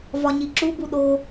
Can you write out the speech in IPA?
v ɒ ɲ i ǁ u b u ɗ o

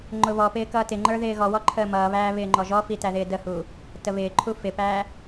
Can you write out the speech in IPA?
ŋ͡ǃ ʊ β ɔ p ɪː k ʌː t ɪ ŋ͡ǃ ə˞ ð ɪː ɣ ɔ w ɔ ǃʰ əː m ʌː β æː β ɪː ŋ͡ǃ ɔ ʒ ɔ f i t æ ð ɪː d ə h uː | t ə β ɪː ǃʰ u f ɪ p æː

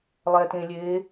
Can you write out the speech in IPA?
lˠ ɛ t ẽ lʲ e

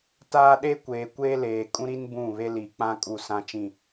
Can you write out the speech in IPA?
t aː˦ ɗ e˦ kʷ eː˨ kʷ eː˦ l eː˨ kʼ ũ˦ ɾ i˦ n b ũ˦˨ β e˦ l i˨ k͡p ã˦ kʼ u˦˨ s ã˦ t͡ʃ ĩ˦˨

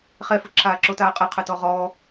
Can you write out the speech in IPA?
χ ɛ f ɯ ǁʰ aː ǁ o t aː qʼ ɯ qʰ ɯ t ɔ ʁ ɔː

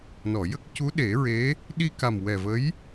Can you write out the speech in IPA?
n ɔ˨˩˨ j ə˦˥ k̚ c u˧˥ ɗ e˨˩˦ ɹ e˧˥ | ɗ i˧ k a˨˩ m w ɛ˨˩ v ə˧˥ j

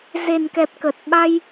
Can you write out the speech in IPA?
z e˨˩ n k ɛ˨˩ p̚ k ə˨˩ t̚ ɓ a˧ j

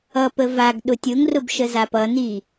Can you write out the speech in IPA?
ʌ p ə v a ɡ ɗ ʊ tʲ ʊ ŋ r ʊ b ʃ ə z a p ʌ n i

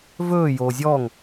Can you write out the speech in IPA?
v ɵː j oː zʲ ɔː ŋ

